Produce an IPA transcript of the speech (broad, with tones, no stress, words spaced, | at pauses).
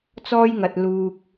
t͡sɔː˥jŋɐ˨t̚ luː˨k̚